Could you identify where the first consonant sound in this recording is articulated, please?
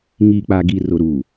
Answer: velar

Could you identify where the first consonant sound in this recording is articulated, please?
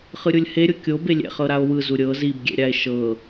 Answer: uvular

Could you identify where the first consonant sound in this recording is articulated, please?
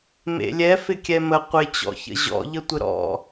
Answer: labial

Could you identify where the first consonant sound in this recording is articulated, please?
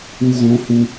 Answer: velar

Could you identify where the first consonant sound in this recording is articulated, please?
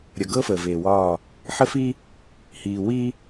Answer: alveolar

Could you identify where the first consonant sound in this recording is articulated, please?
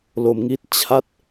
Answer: alveolar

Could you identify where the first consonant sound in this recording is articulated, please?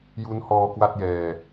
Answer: palatal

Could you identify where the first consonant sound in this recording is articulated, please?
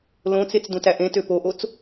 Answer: alveolar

